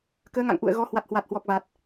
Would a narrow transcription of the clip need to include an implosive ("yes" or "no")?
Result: no